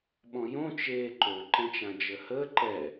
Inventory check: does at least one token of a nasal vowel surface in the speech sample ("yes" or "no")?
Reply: yes